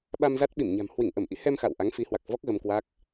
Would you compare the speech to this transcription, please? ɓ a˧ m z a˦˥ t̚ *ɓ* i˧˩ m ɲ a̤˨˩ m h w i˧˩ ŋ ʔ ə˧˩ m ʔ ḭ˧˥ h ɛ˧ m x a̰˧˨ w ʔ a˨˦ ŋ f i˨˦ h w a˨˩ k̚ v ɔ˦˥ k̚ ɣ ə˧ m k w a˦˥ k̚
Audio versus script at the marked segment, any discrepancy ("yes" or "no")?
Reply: no